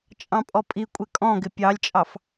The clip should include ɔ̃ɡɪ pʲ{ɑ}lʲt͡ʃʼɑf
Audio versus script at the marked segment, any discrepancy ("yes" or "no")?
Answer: no